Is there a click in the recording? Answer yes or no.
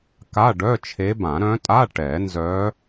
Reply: no